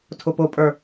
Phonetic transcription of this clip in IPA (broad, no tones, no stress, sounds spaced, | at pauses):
tʰ ʊ p ʊ pʼ ə˞